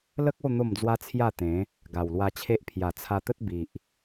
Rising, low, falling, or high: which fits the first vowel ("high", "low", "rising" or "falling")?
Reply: high